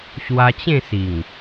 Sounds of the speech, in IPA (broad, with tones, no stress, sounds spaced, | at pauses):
ɕ w a˧ t͡ɕ ẽ˥˧ s i˨˩ ŋ